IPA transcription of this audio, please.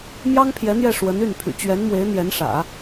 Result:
m j ɑ˥ ŋ pʰ j ɛ˧˥ n̪ j ɛ˥˩ ʂ w ə˧˥ n y˥˩ n pʰ y̰˨˩ t͡ɕ ɥ ɛ˧˥ n m w e˧˥ ɪ̯ n̪ j ɛ˧˥ n ʂ ä̰˨˩˦

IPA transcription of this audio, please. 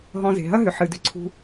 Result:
ɦ ɔ̃˨ z e̤˩ ɦ ɐ˦ ɦ ʏ˩ ħ ɨ˩ d ʏ˨ ǀʰ ṳ˨

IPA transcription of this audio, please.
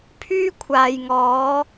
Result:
pʰ yː˥ kʷʰ aː˨ j ŋ ɔː˨˧

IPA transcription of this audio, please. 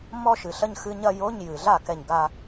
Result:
m ɔ˥˧ ʃ ɨ˨ ɬ ɐ˥˧ ɲ x ɨ˧˥˧ ɲ ɐ˥˧ j o˧˥˧ ɲ j ɨ˨ ɮ a˥˩ k ɛ˥˩ ɲ ɡ a˥˧

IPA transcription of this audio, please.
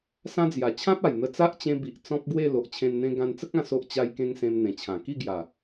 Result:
s ã˦ d͡z j a˨˩ t͡ɕʰ ã˦ p̚ a˨˩ j n̪ ə˧ t͡s a˦ ʔ t͡ɕ ẽ˧ b i˨ ʔ t͡s ɔ̃˦ p̚ ɡ w e˥˧ l o˨ ʔ t͡ɕʰ ẽ˧ n n̪ ẽ˧ ɡ ã˧ n t͡s ə˦ k̚ ã˧ s o˦ ʔ t͡ɕ a˦ j k ẽ˦ ŋ s ẽ˧ m n̪ ẽ˨˩ t͡ɕʰ ã˨˩ k i˥˧ ɡ j a˨˩

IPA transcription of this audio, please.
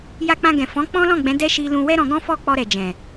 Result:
j a˧ k͡p ã˧ ɡ ɛ̃˨ f ɔ̃˨˦ k͡p ɔ̃˦ l ɔ̃˦˨ ɡ͡b ɛ̃˨˦ d ɛ˦ ʃ i˧ l ũ˧ w ɛ˦ ɾ ɔ̃˧ ɡ ɔ̃˦ f ɔ˦˨ k͡p ɔ˧ ɾ ɛ˨ d͡ʒ ɛ̃˨

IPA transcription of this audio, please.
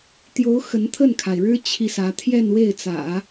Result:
t̪ j o˧˥ ʊ̯ x ə˧˥ n t̪ʰ ə˥˩ n kʰ a˩ ɪ̯ ɻ ɻ̩˥ t͡ɕʰ i˥˩ s ä˧˥ t̪ʰ j ɛ˥˧ n w e˥˩ ɪ̯ t͡s ä̰˨˩˦

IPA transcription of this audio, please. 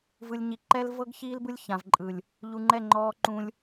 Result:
v ɯ˨ lʲ ɲ i˨ ǃ ɛ˦ l v ɤ˦ ɡ ç iː˦ l b ɯ˦ lʲ ç ã˨ v ǃʼ ɯ˨ lʲ | ʎ u˨ ŋ͡ǃ ɛ˦˨ ŋ͡ǃ ɔː˦ ǃ ũ˦ lʲ

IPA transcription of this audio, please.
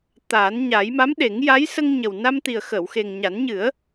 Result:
t̪ a˨˩˦ n ɲ a˨˩˦ j m a˧˥ m ɗ e˨˩˦ ŋ j a˧˥ j s ə˧ ŋ ɲ ə˨˩ w n a˧ m t̪ i˨˩ ə̯ x ə˨˩˨ w x e˨˩ ŋ ɲ a˨˩˦ n ɲ ɨ˨˩˦ ə̯

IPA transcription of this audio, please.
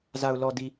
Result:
z a˨ ʊ̯ l ɔ˨ d i˨

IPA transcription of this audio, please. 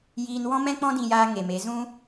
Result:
j iː˧ n w ɔ̃˦ m ɛ̃˦ k͡p ɔ̃˦ d ĩ˧ j aː˧ ŋ e˨ m e˨˦ z ũ˦

